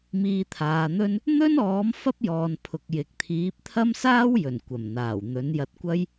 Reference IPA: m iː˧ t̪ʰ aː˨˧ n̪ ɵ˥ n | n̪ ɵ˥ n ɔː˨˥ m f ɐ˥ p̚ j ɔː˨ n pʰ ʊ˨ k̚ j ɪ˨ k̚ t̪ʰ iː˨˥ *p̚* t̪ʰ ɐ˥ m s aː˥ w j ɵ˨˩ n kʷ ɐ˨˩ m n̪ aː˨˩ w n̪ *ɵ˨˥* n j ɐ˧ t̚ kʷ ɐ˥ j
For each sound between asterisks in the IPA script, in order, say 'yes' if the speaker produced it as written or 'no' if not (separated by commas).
yes, yes